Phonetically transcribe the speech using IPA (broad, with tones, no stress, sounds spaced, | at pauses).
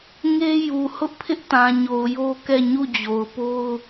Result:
ŋ e˦ j u˨ h ʊ˦ ʔ pʰ ɪ˦ ʔ t ã˨ ɲ o˨ ʊ̯ j o˦ k ɛ˦˨ ɲ u˦˨ d͡ʑ o˨ ʊ̯ p o˦ ʊ̯